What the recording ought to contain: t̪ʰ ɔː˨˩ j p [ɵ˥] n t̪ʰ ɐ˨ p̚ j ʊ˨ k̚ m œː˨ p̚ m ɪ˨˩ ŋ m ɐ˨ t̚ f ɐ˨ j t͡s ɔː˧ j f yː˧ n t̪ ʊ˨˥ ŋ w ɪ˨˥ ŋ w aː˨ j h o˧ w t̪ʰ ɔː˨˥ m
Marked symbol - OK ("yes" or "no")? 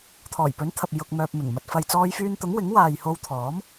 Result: no